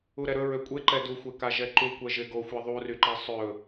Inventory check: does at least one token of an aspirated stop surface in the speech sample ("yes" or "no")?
no